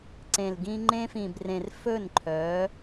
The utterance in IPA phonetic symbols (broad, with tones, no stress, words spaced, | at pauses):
ǀẽ˨lɡĩ˦ ŋ͡ǃẽ˦fĩ˨brẽ˨r fɵ˦˨nǃʰœ˨˦